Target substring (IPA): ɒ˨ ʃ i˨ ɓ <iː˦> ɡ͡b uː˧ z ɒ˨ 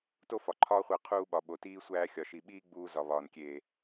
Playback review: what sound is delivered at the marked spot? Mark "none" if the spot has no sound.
iː˦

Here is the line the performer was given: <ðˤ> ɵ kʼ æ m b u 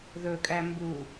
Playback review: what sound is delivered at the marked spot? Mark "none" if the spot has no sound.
ð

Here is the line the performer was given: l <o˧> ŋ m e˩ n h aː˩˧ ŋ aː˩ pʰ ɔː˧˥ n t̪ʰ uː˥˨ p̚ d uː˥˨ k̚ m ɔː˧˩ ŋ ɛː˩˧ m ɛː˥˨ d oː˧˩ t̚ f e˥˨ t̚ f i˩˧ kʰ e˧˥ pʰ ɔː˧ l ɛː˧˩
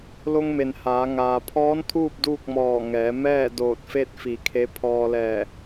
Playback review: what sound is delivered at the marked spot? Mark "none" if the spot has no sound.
o˧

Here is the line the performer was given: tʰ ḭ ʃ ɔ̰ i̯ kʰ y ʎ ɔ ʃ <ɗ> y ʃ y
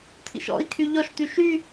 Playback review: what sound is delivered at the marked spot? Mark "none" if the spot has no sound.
t̪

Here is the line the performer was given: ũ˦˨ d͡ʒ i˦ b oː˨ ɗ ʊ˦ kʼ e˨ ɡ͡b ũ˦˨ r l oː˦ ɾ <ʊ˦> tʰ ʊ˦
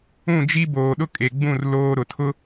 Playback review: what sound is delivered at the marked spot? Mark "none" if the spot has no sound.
ʊ˨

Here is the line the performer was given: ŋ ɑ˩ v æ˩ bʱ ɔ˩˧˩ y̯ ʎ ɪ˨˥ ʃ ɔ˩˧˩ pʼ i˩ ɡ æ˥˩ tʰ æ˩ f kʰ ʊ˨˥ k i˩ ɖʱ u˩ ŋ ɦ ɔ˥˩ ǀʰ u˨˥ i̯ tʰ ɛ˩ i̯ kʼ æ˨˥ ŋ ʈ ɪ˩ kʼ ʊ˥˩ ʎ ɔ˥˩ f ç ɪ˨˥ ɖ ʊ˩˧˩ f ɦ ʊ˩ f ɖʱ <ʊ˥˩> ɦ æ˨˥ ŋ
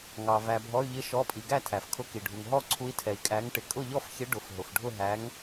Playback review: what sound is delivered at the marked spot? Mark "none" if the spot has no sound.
ʊ˥˩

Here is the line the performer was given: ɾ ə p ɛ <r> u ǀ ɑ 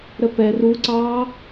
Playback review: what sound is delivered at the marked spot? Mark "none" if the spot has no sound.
r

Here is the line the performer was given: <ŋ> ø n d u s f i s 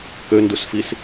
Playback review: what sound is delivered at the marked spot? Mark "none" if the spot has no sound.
k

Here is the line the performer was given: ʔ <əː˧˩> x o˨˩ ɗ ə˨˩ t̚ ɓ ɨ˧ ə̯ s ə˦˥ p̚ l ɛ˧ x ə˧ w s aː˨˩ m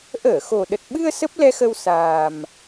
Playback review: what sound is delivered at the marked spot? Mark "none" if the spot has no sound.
əː˧˩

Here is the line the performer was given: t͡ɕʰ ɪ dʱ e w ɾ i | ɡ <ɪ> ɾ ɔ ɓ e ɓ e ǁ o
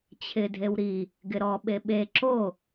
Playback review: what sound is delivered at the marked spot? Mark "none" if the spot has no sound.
ɪ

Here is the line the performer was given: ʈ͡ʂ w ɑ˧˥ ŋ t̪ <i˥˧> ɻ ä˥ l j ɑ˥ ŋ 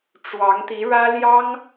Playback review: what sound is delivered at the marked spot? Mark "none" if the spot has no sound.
i˧˥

